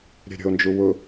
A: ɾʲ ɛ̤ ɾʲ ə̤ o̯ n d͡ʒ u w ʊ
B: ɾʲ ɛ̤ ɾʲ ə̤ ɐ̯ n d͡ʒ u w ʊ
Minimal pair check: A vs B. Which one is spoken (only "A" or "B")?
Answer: A